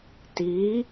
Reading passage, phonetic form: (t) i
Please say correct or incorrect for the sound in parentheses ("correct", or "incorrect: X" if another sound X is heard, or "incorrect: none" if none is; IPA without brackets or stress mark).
correct